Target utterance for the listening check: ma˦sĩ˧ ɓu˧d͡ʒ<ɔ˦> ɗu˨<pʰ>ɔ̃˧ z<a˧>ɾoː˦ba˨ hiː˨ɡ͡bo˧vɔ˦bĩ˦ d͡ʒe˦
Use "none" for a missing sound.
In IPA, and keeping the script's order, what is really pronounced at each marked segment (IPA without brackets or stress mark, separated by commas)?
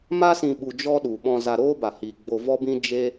ɔ˦, ɓ, a˧